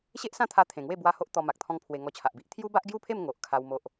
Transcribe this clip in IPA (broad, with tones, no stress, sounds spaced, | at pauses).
ɕ e˦ ʔ s ã˦ t̪ʰ a˧ t̪ʰ ẽ˨˩ ŋ w e˥˧ b w a˦ h o˦ ʔ t̪ ɔ˧ m a˨ k̚ t̪ʰ ɔ̃˦ ŋ pʰ w e˧ ŋ ɔ˧ t͡ɕʰ a˨ ʔ b i˦ ʔ t̪ʰ j u˦ b a˦ ʔ ɡ j u˥˧ pʰ e˥˧ m ŋ o˨ ʔ kʰ a˦ w m o˦ ʔ